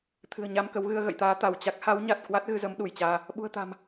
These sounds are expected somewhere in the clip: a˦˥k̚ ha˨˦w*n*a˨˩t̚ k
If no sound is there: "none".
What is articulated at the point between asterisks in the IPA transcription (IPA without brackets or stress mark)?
ɲ